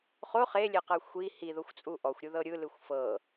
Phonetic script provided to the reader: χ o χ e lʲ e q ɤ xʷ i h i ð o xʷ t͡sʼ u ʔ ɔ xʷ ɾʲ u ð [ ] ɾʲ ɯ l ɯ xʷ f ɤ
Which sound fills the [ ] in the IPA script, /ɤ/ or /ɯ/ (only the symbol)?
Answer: ɤ